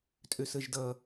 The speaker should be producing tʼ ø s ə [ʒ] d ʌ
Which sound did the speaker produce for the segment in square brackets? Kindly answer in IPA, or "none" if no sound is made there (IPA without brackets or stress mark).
ʒ